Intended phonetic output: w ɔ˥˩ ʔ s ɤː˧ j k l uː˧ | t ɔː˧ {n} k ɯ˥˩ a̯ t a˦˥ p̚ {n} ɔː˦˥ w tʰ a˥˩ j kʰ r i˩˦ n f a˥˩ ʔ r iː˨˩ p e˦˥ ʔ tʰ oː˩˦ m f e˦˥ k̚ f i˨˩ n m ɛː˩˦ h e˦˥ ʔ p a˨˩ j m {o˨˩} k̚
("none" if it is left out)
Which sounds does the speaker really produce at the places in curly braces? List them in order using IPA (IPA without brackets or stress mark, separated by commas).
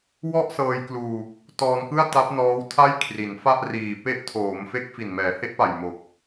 n, n, o˨˩